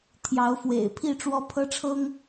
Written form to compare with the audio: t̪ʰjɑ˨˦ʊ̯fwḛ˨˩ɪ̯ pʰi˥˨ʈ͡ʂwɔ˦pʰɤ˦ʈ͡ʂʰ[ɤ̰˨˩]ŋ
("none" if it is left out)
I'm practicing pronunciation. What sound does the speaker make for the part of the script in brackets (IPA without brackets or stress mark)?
ɤ˦